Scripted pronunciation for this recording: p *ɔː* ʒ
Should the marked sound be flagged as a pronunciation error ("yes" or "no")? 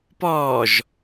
no